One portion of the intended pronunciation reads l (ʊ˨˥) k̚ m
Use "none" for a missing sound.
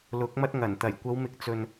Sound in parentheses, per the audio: ʊ˨˥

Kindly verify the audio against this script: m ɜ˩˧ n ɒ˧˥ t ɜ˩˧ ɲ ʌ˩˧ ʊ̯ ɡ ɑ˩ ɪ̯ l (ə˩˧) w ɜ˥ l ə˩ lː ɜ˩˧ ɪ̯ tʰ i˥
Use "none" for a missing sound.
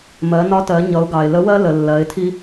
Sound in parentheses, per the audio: ə˧˥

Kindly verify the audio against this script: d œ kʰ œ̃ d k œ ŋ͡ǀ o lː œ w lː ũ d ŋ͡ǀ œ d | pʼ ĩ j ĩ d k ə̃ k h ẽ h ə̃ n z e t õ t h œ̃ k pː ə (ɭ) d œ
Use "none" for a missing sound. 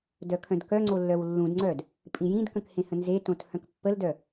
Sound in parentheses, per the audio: l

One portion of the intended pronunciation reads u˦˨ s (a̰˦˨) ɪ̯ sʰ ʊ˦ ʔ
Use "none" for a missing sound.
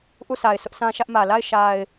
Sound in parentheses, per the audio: a˨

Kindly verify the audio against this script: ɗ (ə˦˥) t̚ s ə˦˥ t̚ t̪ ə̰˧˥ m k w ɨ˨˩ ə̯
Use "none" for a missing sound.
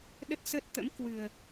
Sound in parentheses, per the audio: ə˦˥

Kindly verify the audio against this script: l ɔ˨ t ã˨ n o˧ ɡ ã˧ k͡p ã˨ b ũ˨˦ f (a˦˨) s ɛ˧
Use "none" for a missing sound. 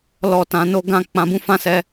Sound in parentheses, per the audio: ã˦˨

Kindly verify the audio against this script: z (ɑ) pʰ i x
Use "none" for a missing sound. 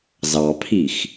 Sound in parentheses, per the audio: ɑ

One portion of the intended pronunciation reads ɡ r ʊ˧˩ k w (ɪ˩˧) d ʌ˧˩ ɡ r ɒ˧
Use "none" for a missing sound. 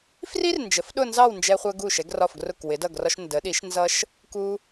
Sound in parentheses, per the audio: ɪ˩˧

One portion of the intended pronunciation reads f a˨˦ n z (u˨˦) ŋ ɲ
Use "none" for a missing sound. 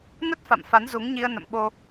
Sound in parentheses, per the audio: u˨˦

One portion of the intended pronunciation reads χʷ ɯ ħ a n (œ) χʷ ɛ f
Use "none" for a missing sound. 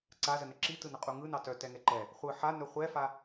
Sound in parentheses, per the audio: œ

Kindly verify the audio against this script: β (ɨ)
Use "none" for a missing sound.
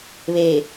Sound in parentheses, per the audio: e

